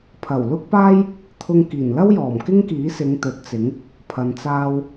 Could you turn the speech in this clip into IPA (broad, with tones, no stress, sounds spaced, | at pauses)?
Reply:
pʰ ɐ˨˩ w l ʊ˥ k̚ p aː˥ j | t̪ʰ ʊ˧ ŋ k iː˨˩ n l ɐ˥ w j ɔː˨˩ m k ɪ˥ ŋ k iː˨˥ s ɪ˨˧ ŋ t̪ ɵ˨ t̚ t͡s ɪ˨˥ ŋ | pʰ ɐ˨ n t͡s aː˧ w